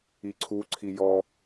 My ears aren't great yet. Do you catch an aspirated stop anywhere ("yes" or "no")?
yes